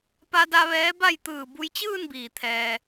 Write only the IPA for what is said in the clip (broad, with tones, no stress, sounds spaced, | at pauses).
p a˧ d a˧ ʋ ɛː˧˥ b a˥˨ j t̪ ɯː˧˩ b u˧ j t͡ɕ ɯː˥˨ n b iː˩ t̪ʰ ɛː˩